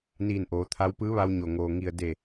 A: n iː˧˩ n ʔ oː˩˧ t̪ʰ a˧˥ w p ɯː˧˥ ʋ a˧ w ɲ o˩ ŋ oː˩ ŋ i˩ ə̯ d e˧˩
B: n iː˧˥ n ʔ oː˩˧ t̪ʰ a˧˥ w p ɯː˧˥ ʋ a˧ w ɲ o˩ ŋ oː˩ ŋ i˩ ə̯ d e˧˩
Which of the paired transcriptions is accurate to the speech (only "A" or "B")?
A